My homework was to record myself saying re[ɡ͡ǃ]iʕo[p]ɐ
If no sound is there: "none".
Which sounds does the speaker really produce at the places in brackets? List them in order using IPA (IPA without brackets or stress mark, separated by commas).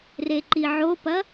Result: ǃ, p